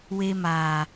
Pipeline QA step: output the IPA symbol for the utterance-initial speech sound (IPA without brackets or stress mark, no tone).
w